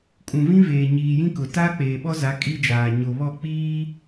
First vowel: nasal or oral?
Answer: nasal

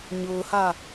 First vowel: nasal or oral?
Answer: oral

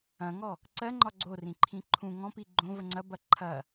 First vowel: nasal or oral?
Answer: nasal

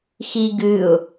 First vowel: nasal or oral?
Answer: oral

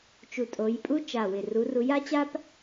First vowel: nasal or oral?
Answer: oral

